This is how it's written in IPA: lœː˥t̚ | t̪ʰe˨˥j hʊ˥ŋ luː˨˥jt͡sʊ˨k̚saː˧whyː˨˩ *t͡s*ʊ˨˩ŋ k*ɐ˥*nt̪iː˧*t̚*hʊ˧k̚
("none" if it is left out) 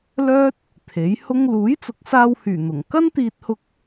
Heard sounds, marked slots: n̪, ɐ˥, t̚

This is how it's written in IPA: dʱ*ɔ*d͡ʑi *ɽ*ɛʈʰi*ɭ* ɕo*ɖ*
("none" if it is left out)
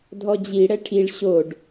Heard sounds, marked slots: ɔ, ɽ, ɭ, ɖ

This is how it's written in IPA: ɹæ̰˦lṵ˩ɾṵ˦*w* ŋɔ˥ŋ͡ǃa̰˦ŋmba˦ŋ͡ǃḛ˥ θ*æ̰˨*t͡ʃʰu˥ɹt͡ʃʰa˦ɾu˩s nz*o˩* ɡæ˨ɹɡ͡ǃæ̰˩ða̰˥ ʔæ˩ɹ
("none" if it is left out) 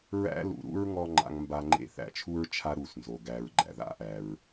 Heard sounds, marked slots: ɹ, æ̰˨, o˩

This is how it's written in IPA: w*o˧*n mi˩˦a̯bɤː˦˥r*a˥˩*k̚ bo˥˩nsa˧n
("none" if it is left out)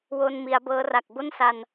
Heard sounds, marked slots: o˧, a˨˩

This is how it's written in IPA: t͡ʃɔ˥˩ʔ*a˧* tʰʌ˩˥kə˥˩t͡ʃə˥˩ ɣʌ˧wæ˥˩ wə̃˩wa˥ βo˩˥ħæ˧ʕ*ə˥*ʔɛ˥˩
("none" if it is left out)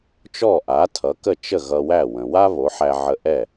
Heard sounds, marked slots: a˩˥, ə˧

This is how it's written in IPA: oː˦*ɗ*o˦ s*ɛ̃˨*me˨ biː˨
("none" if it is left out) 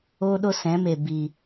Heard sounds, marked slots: ɗ, ɛ̃˨˦

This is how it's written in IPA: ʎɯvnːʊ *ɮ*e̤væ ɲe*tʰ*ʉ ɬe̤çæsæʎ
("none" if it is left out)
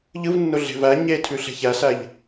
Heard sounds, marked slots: ɮ, tʰ

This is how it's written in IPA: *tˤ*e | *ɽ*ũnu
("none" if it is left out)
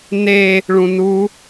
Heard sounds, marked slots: n, ɭ

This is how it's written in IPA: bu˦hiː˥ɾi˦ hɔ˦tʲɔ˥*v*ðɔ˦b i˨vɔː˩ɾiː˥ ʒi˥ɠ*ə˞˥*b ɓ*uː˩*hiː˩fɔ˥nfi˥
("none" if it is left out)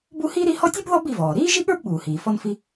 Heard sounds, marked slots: b, ə˞˥, uː˩

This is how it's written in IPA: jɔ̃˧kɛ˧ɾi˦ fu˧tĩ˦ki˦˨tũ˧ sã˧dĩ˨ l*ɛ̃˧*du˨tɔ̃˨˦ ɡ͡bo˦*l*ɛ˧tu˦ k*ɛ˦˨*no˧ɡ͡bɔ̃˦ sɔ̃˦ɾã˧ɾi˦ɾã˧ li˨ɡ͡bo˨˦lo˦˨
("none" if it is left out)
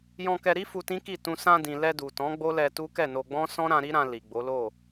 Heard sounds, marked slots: ɛ˧, l, ɛ˦˨

